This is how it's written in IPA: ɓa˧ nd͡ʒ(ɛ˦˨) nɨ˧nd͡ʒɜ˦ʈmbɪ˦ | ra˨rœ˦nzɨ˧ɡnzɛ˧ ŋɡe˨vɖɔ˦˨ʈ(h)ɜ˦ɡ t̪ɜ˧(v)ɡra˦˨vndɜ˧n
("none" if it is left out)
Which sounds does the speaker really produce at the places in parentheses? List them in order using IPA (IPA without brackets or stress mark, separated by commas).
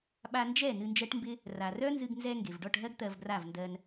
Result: ɛ˦˨, ɦ, v